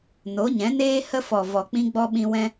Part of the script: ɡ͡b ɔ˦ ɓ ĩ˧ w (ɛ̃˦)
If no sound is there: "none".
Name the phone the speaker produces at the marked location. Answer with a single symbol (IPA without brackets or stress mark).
ɛ̃˦